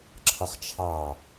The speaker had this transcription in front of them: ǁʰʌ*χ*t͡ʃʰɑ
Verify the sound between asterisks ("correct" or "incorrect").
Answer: correct